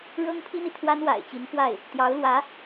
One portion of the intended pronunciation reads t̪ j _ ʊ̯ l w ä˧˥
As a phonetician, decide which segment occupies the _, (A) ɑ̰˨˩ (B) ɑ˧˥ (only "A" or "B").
B